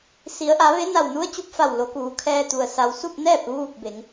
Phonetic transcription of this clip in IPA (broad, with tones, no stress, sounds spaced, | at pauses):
s i˩˧ ə̯ ʔ a˩˧ ʋ e˧˥ n a˧˩ w n u˧˥ ə̯ t͡ɕ u˧ p̚ f a˧˩ w l o˩˧ k uː˩˧ kʰ ɛː˧ t̪ u˩ ə̯ s a˩ w s u˥˨ p̚ n ɛː˥˨ p̚ ʋ uː˥˨ k̚ b e˩˧ ŋ